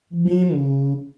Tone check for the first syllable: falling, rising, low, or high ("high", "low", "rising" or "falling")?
high